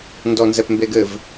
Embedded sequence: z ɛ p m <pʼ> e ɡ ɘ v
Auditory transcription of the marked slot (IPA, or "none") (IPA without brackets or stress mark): b